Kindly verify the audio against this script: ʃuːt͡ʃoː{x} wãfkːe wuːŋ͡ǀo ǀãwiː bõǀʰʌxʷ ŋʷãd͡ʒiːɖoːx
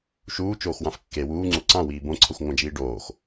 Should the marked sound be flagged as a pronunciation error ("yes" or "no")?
no